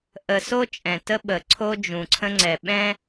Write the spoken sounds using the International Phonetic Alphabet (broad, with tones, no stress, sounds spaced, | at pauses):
ʔ ə˨ s o˦ t͡ʃʼ ɛ̃˨ t ə˦ ɓ ə˨ ǀʰ o˦ d͡ʒ ũ˨ ǀʰ ə̃˦ ŋ͡ǀ ɛ˨ ɓ ɛ̃˦